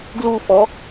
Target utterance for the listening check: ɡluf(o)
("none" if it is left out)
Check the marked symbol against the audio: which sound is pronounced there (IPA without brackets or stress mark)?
ɔ